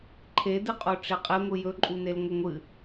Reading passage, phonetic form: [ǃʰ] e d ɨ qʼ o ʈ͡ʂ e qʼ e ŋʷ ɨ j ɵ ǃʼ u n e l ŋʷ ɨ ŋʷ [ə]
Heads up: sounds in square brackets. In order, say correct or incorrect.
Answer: correct, incorrect

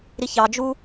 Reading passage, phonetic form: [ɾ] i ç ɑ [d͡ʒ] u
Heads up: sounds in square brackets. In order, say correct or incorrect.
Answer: correct, correct

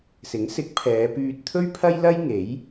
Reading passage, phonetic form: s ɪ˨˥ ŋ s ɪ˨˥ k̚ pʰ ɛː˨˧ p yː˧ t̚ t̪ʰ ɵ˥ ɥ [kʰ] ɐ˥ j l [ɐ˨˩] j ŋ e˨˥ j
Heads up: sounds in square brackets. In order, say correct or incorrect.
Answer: incorrect, incorrect

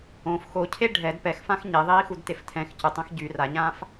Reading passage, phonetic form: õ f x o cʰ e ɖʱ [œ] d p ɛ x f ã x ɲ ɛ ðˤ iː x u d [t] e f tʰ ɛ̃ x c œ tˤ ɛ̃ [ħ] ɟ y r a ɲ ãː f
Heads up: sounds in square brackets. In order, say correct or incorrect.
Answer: incorrect, correct, incorrect

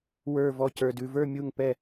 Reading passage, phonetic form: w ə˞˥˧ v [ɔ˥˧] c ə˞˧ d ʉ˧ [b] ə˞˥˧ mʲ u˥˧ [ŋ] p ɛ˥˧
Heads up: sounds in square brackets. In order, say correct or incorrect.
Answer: correct, incorrect, correct

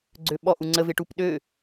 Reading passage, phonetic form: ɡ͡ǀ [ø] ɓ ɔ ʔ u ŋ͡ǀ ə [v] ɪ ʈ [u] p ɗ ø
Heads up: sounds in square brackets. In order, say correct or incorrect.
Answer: correct, correct, correct

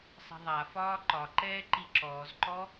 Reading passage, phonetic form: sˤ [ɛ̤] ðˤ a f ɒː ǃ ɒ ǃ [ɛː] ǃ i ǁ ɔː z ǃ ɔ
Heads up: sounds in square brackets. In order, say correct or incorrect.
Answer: correct, correct

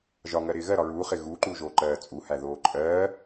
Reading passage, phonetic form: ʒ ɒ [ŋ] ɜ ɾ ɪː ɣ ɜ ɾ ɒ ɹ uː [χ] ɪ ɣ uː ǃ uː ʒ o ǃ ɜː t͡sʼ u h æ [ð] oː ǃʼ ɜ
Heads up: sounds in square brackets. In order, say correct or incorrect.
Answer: correct, correct, correct

